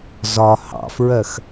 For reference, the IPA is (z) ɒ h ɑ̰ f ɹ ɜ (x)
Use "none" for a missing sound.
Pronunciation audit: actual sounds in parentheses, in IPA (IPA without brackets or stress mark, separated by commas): z, x